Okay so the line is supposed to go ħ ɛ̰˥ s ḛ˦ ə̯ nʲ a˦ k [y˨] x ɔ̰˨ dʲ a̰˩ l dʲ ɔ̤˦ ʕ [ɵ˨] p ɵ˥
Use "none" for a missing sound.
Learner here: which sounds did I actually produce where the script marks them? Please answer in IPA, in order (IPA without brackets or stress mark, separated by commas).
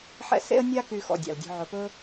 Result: y˨, ɵ˨